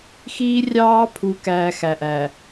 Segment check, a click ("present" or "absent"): absent